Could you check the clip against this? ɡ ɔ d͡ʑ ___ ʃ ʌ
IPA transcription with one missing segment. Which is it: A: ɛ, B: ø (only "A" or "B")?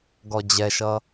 A